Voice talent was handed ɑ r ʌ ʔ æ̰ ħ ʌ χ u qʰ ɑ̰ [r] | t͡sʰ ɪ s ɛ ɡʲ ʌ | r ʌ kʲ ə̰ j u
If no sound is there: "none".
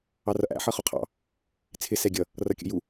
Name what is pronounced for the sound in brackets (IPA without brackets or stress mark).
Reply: none